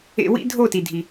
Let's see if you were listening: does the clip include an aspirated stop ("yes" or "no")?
no